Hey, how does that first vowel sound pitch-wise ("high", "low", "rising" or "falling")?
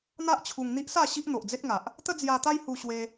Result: high